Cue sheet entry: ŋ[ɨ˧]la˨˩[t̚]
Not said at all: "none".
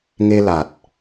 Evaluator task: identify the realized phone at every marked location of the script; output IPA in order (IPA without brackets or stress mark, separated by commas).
e˧, t̚